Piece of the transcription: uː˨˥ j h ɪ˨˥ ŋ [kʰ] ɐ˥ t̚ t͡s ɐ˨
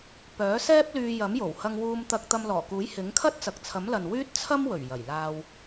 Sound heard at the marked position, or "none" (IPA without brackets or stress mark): kʰ